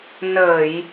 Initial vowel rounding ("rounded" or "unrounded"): unrounded